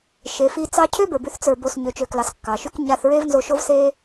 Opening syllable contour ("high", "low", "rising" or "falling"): low